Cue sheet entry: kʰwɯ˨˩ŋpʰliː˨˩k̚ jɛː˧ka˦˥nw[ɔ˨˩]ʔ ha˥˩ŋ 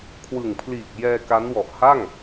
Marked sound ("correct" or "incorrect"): correct